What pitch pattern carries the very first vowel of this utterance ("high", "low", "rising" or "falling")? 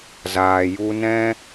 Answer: low